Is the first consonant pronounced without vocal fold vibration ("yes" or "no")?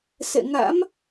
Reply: yes